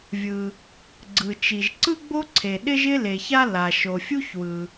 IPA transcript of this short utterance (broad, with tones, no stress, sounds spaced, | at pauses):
vʲ ɯ˩ | ɡ͡ǀ ɯ˩ t͡ʃ i˩ ʒ ǀ ɯ˥ ɡ͡b o˥ ǀʰ e˩ ɗ ɪ˥ ʒ ɪ˥ l e˩ ç a˥ l a˩ ʃ o˩ fʲ u˥ ç w ɯ˩